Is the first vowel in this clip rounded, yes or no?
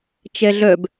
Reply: no